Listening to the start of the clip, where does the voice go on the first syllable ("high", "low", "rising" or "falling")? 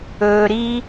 low